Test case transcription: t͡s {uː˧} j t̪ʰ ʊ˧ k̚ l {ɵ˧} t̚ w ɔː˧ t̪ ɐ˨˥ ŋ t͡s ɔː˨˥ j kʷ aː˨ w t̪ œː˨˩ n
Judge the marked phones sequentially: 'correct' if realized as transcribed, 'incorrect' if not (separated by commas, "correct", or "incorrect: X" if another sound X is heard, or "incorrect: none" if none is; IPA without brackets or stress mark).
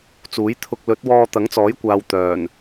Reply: incorrect: uː˨˥, incorrect: ɵ˨˥